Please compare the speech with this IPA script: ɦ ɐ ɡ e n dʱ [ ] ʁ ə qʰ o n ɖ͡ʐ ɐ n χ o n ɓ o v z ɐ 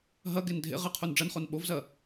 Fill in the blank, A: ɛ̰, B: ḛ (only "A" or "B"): B